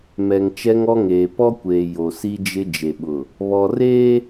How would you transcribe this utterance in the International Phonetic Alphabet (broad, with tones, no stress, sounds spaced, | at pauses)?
m ɛ˨ ŋ t͡ʃ ɛ˦ ŋ ɔ˦ ŋ eː˨ p ɔ˦ kʷ eː˨ j o˨ s i˦ d͡ʒ ɪ˦ d͡ʒ e˨ ɓ ʊ˨ | β ɔ˨ r eː˦